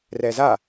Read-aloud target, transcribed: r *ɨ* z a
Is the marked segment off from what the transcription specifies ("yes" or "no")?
yes